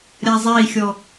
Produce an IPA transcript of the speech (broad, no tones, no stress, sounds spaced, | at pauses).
ɾʲ a zˤ e i̯ xʲ ɔ